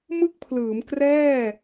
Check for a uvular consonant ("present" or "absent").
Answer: absent